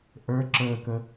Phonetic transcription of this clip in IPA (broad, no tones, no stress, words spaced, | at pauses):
ʔə˞ ǁəːkə